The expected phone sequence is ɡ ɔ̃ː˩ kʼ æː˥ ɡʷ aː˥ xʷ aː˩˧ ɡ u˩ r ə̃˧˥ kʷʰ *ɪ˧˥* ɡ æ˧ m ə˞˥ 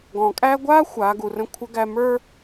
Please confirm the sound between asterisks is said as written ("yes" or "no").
no